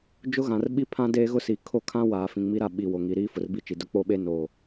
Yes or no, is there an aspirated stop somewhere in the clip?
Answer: yes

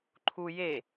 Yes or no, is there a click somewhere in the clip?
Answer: yes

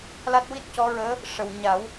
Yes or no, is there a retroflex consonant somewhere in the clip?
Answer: yes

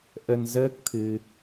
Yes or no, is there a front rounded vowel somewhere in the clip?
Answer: no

